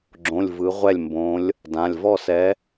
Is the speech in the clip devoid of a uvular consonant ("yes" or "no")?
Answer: no